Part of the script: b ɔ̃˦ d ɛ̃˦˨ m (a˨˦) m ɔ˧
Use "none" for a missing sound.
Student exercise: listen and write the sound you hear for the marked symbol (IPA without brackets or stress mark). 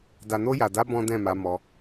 a˨˦